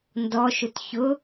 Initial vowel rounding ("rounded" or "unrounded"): rounded